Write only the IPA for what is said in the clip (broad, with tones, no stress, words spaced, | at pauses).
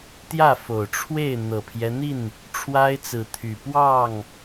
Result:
t̪jä˥˨fo˨˩ʊ̯ʈ͡ʂʰwe˥˨ɪ̯ n̪ɤ˨˩pʰjɛ˦n̪i˥˨n | ʈ͡ʂʰwa˦ɪ̯t͡sɹ̩˨˦t̪ʰy˨˩ pwɑ˥˨ŋ